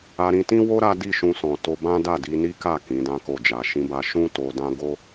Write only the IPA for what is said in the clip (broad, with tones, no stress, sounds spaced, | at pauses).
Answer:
a˧ ɾ ĩ˧ t ĩ˦ w o˦ ɾ a˦ d i˦˨ ʃ ũ˧ s ɔ̃˨ t o˧ b ã˦ d a˦˨ d i˧ n i˦ k a˦˨ k ĩ˨˦ d ã˦ k o˦˨ d͡ʒ a˧ ʃ ĩ˧ b a˧ ʃ ũ˦ t o˧ d ã˦ ɡ o˦